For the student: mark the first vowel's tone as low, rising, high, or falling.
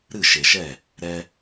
falling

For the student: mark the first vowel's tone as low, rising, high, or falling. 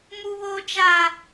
high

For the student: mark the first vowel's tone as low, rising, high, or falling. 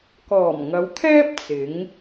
low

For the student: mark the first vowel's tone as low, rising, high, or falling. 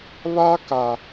high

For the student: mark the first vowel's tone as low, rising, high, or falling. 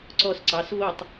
low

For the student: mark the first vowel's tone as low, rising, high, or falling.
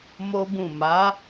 high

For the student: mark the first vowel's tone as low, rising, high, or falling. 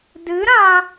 rising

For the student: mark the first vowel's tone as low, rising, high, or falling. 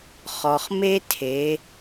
low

